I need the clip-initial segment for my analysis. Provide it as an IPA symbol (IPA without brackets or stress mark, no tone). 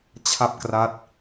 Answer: t͡ɕʰ